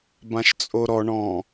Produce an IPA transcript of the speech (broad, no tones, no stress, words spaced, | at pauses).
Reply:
bãʃt͡sʼoɾɔ ɳɔ̃